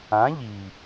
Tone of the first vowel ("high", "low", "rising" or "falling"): rising